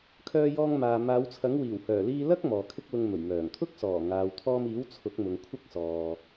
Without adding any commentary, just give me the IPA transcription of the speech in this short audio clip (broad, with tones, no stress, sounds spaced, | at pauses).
kʰ œː˧ j ɔː˧ ŋ m aː˨ m aː˨˧ w t͡sʰ ɐ˨˥ ŋ w iː˨˩ w h œː˨˩ l iː˧ l ɐ˥ k̚ m ɔː˨ kʰ ɪ˥ k̚ l ʊ˧ ŋ m ɵ˨˩ ɥ m œː˨˩ ŋ t̪ʰ ʊ˥ k̚ s ɔː˨˩ ŋ aː˨ w t̪ʰ ɔː˧ m iː˨˥ w t͡sʰ ʊ˨˥ k̚ m ʊ˨ ŋ kʷʰ ɐ˥ k̚ s ɔː˨